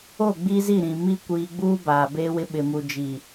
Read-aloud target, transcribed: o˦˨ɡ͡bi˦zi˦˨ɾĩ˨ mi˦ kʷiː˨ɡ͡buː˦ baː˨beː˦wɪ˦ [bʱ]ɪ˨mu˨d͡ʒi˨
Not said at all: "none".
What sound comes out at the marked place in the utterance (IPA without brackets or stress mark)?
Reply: ɓ